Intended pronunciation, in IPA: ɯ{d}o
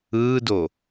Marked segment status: correct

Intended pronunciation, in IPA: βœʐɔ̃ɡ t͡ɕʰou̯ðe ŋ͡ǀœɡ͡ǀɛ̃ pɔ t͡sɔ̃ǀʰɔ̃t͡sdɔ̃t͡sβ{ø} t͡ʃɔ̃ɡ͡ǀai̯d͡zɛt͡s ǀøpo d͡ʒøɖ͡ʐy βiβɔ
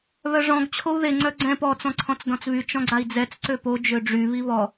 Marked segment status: incorrect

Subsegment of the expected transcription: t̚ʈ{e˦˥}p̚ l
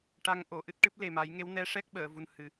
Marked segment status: incorrect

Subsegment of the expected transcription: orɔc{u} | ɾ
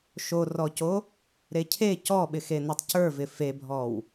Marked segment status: incorrect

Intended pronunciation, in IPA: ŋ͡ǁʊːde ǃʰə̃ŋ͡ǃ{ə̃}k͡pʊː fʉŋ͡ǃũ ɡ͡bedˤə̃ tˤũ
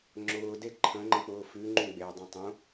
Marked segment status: correct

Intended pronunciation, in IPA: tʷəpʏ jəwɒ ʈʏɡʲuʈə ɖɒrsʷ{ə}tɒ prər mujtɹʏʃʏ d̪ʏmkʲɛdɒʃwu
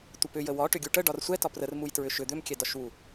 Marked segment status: incorrect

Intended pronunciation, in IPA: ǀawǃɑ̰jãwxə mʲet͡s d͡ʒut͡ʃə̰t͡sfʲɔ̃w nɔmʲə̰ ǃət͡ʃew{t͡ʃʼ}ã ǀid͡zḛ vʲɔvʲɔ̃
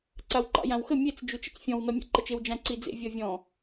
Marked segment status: incorrect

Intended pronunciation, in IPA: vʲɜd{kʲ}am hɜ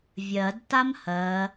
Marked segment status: incorrect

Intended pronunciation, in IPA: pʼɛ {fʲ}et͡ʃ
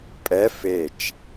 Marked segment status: incorrect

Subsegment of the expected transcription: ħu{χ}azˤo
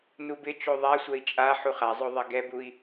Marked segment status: correct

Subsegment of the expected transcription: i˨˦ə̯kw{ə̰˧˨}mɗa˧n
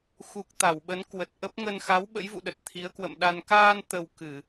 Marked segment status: correct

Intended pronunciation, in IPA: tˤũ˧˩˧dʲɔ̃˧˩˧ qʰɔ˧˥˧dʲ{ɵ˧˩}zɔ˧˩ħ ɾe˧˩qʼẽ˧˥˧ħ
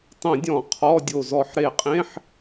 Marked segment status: incorrect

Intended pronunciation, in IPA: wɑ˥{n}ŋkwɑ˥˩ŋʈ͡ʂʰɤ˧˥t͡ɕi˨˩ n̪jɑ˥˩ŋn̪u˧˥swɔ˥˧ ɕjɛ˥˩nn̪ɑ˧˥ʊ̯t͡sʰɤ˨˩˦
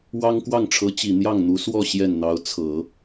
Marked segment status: incorrect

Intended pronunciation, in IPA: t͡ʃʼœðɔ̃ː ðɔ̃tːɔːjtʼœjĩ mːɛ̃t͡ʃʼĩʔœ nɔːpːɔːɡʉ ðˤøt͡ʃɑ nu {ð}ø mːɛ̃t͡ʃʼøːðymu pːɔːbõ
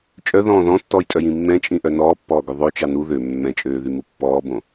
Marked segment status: correct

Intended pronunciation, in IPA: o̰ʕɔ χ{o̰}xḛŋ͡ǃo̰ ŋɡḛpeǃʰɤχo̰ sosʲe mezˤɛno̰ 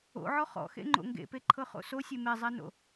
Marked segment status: incorrect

